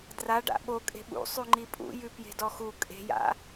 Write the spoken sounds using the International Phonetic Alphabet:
d r a ɖ a̰ ɓ o kʼ e̤ ɓ ṵ sˤ ʉ ŋ͡ǃ i pʼ ṵ j ʉ p j e̤ d ɔ x u kʼ e̤ j a̰

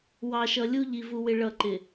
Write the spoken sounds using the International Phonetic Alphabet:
w ɑ˨ ʃ ʌ˨ lʲ u˦ ʎ i˨ v u˨ w ɪ˨ ɭ ʌ˦˨ ǃ ɪ˨

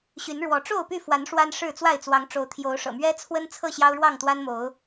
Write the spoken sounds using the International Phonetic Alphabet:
ɕ y˨˦ n ɻ w ɔ˨˦ ʈ͡ʂ o˥˨ ʊ̯ p y˥˨ f w a˨˦ n ʂ w a˦ n ʂ ɻ̩˥˨ t͡s w a˥˨ ɪ̯ t͡s w ɑ˨˦ ŋ ʈ͡ʂ o˨˦ ʊ̯ t̪ʰ j o˨˦ ʊ̯ ʂ ɤ̰˨˩ m ɥ ɛ˦ t͡sʰ w ə˦ n t͡sʰ ɤ˥˨ ɕ j ɑ˦ ʊ̯ ɻ w ɑ˥˨ ŋ t̪ w a˦ n m o˨˦ ʊ̯

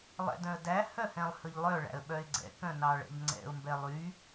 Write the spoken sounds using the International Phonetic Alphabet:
lˠ ɛ̰ d œ̃ ə̯ d æ h œ h ɛ̃ lˠ h ɵ ʎ lˠ œ ɭ æ̰ ə̯ ɓ œ ɪ̯ ɡ͡ǀ ɛ̰ k œ̃ n ɑ ɭ ɛ̰ ʎ ŋ͡ǀ ɛ̰ ʊ̯ m b ɛ lˠ y

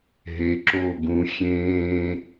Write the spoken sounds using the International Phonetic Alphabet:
ɦ e ǁ oː ɡ ũ xʲ ẽː

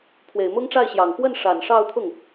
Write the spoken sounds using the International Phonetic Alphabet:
pʰ w e˨˩ ɪ̯ m ʊ˥ ŋ ʈ͡ʂ a˥˩ ɪ̯ ɕ j ɑ˨˩ ŋ p w ə˥˩ n ʂ a˨˩ n ʂ ɑ˥˧ ʊ̯ t̪ʰ ʊ˥˩ ŋ

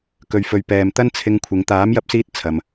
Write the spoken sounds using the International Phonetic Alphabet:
k ɵ˨ ɥ f ɵ˨ ɥ p ɛː˨ m t̪ ɐ˥ n t͡sʰ ɪ˧ ŋ kʷʰ ɪ˨˧ ŋ t̪ aː˨˥ m j ɐ˧ p̚ s iː˧ t̚ t͡sʰ ɐ˨ m

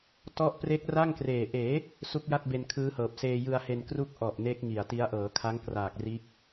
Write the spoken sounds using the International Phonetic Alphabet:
t ɔ˥˩ ʔ p r e˦˥ k̚ r a˥˩ ŋ k r eː˨˩ ʔ eː˩˦ | s u˦˥ k̚ j a˥˩ t̚ b e˧ n kʰ ɯː˦˥ h ɤː˨˩ p̚ s eː˧ j ɯ˧ a̯ h e˧ n k r u˥˩ k̚ ʔ ɔ˨˩ ʔ n eː˦˥ k̚ ŋ i˨˩ a̯ t i˦˥ a̯ ʔ ɤː˩˦ kʰ a˦˥ ŋ k r aː˨˩ k̚ r iː˦˥ k̚

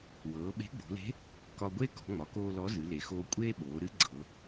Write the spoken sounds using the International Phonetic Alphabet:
w ɤː˩˧ ɓ e̤˧˥ ɡ͡b o̤˩˧ l e̤˧˥ | k ɒ˧ ɡʷ e˥ k ɔ̤˩˧ ŋ͡m ɒ˩˧ k oː˧ l ɔ˧˥ z ɨ˩˧ l e˩ x oː˧ kʷʼ eː˥ ɓ oː˩˧ ɾ ɨ˧˥ ɡ͡ǀ ɤ˩˧

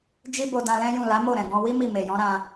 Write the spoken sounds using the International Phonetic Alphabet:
d͡ʒ i˦ b o˧ d ã˧ l ɛ̃˦ j ũ˦˨ l a˨˦ m o˦˨ ɾ ɛ̃˨ ɡ ɔ̃˧ w i˦ m i˦˨ m e˨ j ɔ̃˨˦ ɾ ã˧

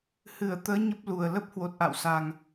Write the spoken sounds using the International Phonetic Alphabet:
h ɨ˧˩ ə̯ t̪ əː˨˦ ɲ ə˦˥ p̚ l u˨˩ ə̯ l ə˦˥ p̚ h w o˨˩ t̚ ʔ a̰˧˨ w s a˨˩ ŋ

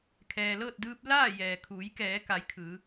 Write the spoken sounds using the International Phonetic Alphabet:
kʰ ɛː˩ l ɤː˥˨ t̚ d ɯː˧ p̚ l aː˥˨ j ɛː˩ kʰ uː˩˧ j k ɛː˩˧ k a˩˧ j kʰ ɯː˩˧

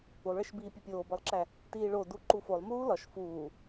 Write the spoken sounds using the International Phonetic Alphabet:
u lˠ ɭ e ʃ b iː pʲ e pʲ oː b ɒ lˠ ǁ æ | t iː ɭ o d u ǃ u f o lˠ m uː l ɒ ʃ f uː

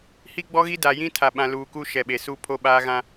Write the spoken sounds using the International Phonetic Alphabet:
h i˦ ɡ͡b ɔ˦ ɣ i˦ d a˨ j ĩ˦ tʰ a˨ ɓ ã˨ l uː˨ k u˦ ʃ ɛ˨ ɓ e˨ s u˦ pʰ o˦ ɓ aː˦ ɣ ã˦

